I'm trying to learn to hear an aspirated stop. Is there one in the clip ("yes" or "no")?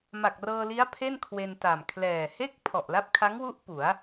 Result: yes